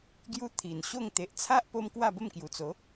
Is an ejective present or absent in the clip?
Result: absent